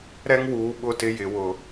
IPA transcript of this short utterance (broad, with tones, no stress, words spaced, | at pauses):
ɾɛ˦ŋ wuː˨ɓʊ˦˨tɪ˦ jɪ˨wʊ˨